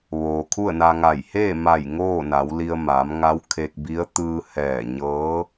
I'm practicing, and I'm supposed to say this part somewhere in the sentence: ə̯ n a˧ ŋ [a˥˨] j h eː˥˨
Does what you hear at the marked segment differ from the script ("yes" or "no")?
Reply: yes